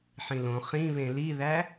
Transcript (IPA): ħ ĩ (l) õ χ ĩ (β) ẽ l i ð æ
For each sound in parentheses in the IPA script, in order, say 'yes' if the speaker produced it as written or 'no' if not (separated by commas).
yes, yes